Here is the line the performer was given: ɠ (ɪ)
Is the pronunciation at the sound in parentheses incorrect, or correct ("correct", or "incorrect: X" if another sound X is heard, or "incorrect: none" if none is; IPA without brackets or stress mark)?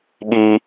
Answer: incorrect: i